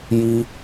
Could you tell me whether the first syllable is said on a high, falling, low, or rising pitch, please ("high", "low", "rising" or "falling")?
high